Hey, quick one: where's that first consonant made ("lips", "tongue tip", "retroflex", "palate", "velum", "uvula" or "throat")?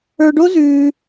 retroflex